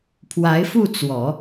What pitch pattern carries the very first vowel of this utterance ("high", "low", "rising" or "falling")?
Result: rising